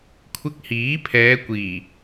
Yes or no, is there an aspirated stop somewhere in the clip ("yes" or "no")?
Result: yes